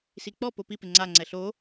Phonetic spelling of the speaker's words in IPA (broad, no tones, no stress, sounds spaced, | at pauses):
s i k͡p ɔ p o p i p ɪ ŋ͡ǀ a ŋ͡ǀ ɛ ɬ o